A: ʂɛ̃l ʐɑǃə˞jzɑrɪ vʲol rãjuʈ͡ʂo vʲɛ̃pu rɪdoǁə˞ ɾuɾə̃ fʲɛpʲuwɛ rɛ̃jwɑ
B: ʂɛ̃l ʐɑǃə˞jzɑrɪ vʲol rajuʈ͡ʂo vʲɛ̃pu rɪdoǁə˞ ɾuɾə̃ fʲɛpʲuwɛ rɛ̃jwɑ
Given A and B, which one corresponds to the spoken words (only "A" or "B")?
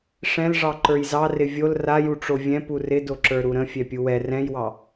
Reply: B